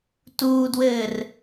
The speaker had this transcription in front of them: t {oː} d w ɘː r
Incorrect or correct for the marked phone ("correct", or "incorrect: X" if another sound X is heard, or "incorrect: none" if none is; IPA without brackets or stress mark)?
incorrect: uː